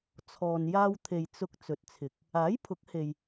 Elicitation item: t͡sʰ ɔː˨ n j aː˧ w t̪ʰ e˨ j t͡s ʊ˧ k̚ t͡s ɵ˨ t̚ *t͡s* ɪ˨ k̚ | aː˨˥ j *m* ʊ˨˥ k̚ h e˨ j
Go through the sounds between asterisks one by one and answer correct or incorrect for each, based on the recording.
incorrect: t͡sʰ, incorrect: pʰ

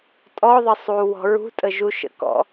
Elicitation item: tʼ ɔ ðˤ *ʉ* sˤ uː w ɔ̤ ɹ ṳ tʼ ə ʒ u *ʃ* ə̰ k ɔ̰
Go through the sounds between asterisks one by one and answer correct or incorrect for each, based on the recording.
incorrect: ə, correct

